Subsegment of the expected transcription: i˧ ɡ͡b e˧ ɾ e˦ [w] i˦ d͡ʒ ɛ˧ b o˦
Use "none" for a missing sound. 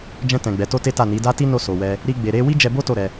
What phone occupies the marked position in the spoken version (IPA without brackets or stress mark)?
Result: w